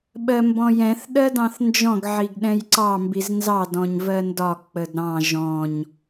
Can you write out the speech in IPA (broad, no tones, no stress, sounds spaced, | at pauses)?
ɓ ɜ m b ɔ̃ j ɛ̃ θ ɗ ɜ d ɑ̃ θ n d͡ʒ ɔ̃ ɡ ʕ i ɡ ɗ ɛ̃ j ǀ ɑ m b i z n z ɑ d ɔ̃ ɲ v ɜ n d ɒ k͡p ə d ɾ ɑ̃ ʒ ɔ̃ ɲ